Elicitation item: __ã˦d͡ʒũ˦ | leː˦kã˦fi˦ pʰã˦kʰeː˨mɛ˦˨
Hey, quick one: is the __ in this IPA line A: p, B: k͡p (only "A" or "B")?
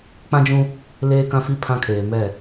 B